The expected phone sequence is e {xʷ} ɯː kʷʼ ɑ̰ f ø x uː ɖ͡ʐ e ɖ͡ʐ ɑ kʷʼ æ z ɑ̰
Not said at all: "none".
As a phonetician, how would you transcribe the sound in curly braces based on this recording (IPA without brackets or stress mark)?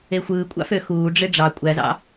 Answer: xʷ